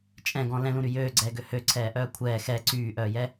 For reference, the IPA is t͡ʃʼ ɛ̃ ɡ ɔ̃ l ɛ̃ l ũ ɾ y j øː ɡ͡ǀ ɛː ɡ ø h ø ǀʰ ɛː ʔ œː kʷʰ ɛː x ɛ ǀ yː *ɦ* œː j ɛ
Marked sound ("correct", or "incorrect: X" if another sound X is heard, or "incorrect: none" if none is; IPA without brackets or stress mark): incorrect: ʔ